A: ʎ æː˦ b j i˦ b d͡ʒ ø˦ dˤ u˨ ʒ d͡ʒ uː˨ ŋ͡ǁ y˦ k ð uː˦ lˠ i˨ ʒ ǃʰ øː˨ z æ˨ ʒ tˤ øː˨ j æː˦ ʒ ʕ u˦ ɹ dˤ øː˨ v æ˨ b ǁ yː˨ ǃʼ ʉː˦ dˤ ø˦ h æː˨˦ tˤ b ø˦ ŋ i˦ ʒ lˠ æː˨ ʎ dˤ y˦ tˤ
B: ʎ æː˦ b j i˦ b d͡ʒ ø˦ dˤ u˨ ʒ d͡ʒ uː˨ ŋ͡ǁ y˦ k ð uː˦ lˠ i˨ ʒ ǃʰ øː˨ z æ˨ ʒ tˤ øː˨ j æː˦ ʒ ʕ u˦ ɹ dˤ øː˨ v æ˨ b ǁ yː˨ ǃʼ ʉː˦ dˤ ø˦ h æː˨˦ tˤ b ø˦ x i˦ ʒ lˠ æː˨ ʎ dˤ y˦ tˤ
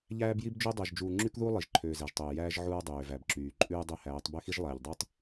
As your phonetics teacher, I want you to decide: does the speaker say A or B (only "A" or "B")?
B